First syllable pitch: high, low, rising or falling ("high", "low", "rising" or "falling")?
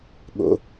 low